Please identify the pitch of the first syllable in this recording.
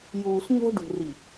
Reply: low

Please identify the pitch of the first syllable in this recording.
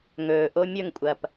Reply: low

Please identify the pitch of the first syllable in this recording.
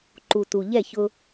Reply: low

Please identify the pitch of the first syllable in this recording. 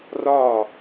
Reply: falling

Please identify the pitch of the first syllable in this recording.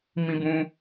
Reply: high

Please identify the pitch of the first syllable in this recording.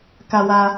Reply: low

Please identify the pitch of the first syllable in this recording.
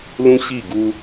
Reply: high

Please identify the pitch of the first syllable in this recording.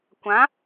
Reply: rising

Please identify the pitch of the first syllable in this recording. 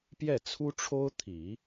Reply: falling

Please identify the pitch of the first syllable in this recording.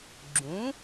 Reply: rising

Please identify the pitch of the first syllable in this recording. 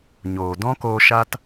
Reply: low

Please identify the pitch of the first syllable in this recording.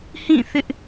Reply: falling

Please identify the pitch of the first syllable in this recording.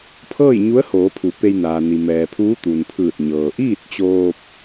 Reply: falling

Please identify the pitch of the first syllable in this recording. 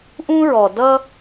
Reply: high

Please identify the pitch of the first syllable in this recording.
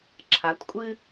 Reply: rising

